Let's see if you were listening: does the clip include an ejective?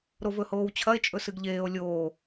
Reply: yes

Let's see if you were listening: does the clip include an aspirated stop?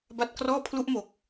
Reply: yes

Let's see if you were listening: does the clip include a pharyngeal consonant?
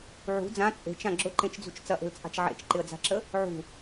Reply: yes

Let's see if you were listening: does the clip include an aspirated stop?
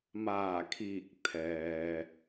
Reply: yes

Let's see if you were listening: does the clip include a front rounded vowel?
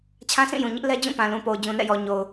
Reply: no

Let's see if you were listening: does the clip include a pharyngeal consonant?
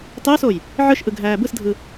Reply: yes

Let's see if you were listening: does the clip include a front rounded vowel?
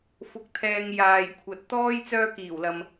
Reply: yes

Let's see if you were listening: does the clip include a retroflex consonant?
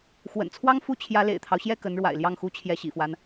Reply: yes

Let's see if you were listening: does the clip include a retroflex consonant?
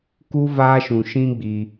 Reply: no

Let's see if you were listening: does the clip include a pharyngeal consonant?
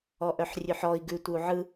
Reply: yes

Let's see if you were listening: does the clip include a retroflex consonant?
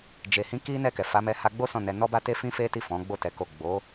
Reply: no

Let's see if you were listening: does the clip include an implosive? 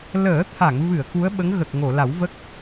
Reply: yes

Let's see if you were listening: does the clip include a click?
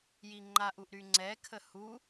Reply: yes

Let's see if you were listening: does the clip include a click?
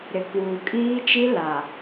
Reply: no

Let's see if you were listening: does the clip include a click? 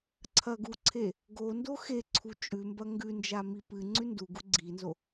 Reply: yes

